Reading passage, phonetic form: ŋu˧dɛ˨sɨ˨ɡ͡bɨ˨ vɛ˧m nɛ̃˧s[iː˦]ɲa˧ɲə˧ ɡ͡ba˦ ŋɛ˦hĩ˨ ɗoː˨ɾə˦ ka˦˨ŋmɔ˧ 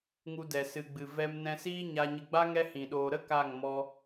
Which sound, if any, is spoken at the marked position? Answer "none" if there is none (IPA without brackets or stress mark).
iː˦